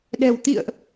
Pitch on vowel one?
low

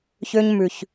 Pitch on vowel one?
high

